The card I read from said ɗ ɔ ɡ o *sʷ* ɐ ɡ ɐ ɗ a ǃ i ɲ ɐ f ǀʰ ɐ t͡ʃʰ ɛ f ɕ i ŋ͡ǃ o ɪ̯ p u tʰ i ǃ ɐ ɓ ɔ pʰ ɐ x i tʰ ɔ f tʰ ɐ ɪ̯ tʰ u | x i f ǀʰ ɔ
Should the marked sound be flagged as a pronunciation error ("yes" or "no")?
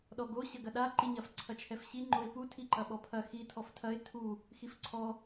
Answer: yes